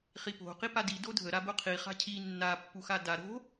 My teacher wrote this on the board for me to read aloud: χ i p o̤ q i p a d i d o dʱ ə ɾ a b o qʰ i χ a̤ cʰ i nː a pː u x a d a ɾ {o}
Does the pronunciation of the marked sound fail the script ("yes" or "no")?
yes